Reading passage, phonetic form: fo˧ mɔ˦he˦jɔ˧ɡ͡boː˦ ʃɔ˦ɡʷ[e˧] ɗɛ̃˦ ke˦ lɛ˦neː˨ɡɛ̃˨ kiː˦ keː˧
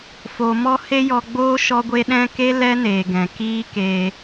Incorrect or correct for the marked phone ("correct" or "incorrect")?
incorrect